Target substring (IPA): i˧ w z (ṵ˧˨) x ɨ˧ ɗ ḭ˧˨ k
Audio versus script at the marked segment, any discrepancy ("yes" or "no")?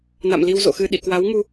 yes